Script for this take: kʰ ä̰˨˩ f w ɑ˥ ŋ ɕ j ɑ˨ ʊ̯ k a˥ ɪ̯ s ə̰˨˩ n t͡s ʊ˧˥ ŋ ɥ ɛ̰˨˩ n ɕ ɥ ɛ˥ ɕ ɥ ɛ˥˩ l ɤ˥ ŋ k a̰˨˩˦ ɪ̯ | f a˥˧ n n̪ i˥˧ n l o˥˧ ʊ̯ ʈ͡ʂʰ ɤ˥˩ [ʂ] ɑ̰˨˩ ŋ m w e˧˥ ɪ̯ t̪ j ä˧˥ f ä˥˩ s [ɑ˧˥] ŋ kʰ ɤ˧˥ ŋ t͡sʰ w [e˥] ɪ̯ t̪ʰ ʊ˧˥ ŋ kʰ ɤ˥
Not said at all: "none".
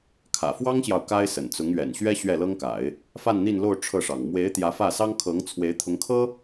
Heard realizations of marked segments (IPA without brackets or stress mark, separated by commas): ʂ, ɑ˥, e˧˥